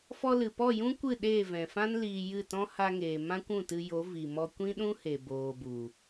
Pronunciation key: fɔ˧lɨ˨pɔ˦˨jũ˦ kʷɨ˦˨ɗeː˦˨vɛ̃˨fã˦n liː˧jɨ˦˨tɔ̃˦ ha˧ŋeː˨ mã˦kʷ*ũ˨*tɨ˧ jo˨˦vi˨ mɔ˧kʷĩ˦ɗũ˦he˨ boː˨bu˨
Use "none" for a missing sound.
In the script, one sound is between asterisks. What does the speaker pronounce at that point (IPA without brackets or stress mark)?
ũ˦˨